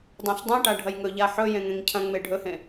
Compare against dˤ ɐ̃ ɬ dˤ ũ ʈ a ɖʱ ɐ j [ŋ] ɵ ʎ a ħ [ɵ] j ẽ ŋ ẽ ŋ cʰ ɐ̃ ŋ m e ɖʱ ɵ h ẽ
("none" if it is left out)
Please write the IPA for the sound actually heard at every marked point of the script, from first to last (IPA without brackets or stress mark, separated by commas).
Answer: ŋ, ɵ